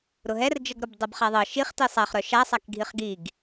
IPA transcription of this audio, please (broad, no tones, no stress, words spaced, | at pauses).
ɾʊɦɛrd͡ʒɤɡɾʊb dˤɤbχaðˤɤ ʃiχ tisˤaχɾœ ʃa sˤakɡʱiχɡiɡ